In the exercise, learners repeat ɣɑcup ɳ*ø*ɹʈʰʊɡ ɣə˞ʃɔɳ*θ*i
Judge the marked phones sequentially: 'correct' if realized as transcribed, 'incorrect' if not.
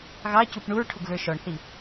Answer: incorrect, correct

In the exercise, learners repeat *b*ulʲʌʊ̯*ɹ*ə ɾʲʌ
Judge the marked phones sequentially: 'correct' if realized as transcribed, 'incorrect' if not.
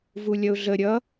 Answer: incorrect, incorrect

